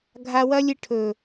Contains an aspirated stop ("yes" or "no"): yes